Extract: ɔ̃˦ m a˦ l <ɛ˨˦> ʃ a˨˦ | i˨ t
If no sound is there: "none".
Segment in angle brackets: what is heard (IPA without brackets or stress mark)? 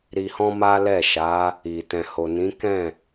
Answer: ɛ˦˨